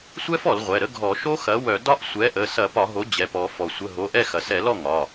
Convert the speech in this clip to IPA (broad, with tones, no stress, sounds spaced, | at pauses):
sʷ ɛ˦˥ f ɔ˧˩˧ l ʁʷ ɛ˩˧˩ ɾ ə˦˥ ɡʱ ɔ˧˩˧ ʃ o˦˥ x ɐ˩˥ w œ˧˩˧ d ɒ˦˥ ʔ sʷ ɛ˩˥ ʔ ə˩˧˩ s ɐ˧˩˧ p ɒ˧˩˧ ɦ o˩˥ d͡ʑ ɛ˩˧˩ p ɔ˧˩˧ f ɔ˩ sʷ ə˩˧˩ ɦ o˩˧˩ ʔ ɛ˥˩ x ɐ˩ s ɛ˧˩˧ l ɔ˥˩ ŋ ɒ˩˧˩